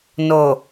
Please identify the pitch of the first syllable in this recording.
low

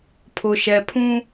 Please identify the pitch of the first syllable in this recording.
low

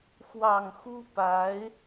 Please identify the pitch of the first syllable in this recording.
low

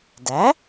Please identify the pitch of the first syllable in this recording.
rising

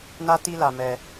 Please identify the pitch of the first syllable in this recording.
high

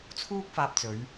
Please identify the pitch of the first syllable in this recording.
high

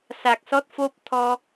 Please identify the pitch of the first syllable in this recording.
low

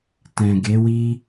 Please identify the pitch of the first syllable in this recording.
low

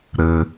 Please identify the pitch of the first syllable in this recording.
low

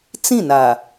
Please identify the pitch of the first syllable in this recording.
falling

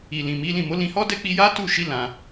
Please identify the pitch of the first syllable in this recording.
low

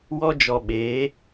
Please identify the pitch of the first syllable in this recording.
high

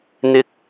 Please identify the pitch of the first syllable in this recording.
high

